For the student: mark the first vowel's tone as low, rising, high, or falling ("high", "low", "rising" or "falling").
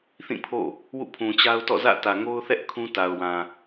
falling